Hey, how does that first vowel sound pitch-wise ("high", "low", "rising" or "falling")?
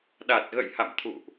low